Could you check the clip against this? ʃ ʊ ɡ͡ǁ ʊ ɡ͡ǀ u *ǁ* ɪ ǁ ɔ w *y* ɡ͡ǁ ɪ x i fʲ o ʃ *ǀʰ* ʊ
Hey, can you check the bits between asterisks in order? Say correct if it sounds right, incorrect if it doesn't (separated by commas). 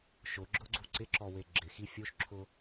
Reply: incorrect, incorrect, incorrect